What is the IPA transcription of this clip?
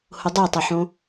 hʊdˤetˤʊħõ

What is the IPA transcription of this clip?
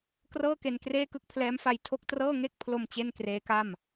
krɤː˥˩ke˧n kreː˥˩kɯ˥˩k̚pʰlɛː˦˥mfa˧j tʰo˥˩k̚trɤː˥˩ ŋe˥˩k̚pʰlo˧m t͡ɕe˥˩nkreː˦˥ka˥˩m

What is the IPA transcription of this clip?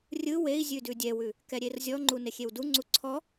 rʲɯ wei̯ zʲʉdʉdʲɛwʉ | kɛɾʲerzʲɔŋ͡ǃu nexʲewduŋ͡ǀu ǀʰɔ

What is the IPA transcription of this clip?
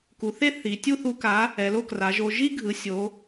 ku˩˧ θe˥θi˩˧ tʲu˥˧θu˧ka˨˥ | ɛ˩˧lo˥˧kra˩˧ʒo˧ ʒi˥ɡʱɯ˩˧sʲo˩˧

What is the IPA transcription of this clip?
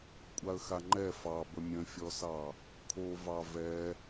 kʷʼaə̯xaŋ͡ǃɛ fɑ bəmʲə̃fʲɔsɑ | kʰovɑ vɛ

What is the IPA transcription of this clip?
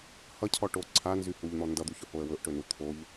hʌcʰɔʈo ǀʰanzy huʎn̪ɔ ndʌd̪uçʊhoə̯ wɵʔʈɵnu t̪ʰoʎ

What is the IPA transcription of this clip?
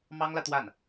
mɑ˥ŋlä˨t̪wa˥˩n

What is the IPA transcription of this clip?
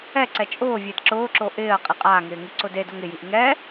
ɛǀɛ t͡ʃʼʊːvʲed ǁʊːǁo ʔɪːɐ̯ qʼɪqʼaːŋɪː ŋiǀʊdedoŋ ɪjiʔ ŋɛ

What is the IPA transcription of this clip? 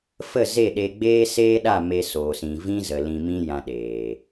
fə˦˨ze˦˨ɗe˧ ɡ͡beː˦seː˦ɗa˦˨ me˧soː˨sĩ˨ vĩ˦zə˨ lĩ˧mĩ˦ jã˧ɗeː˨

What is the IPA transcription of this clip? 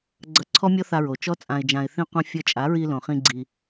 ɡ͡ǀʌ˧ǀʰɔ˦mʲɔ˦θa˧ ɹo˨t͡ʃɔ˦t͡sʼã˧ɪ̯d͡ʒã˧ɪ̯ θĩ˧qʷã˧ fʲʌ˧ t͡ʃʼa˨˦ɹi˧lõ˨χĩ˧ ɡ͡ǀi˧

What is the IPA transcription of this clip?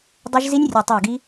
dˤy˦˥ʒ zi˦˥nʲ rʲe˧˩tˤi˧˩ə̯ɡi˦˥

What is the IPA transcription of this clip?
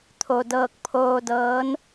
t̪ʰo˩dɤː˧˩k̚pʰoː˧ dɤː˧˥n

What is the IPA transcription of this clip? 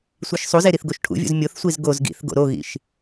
sʷiʃsˤuze ɾiθɡoʃʈʰṵvʲṵz mʲoθsʷiz ɡoz ɡḭθ ɡo̰ɾoɣḭʃ

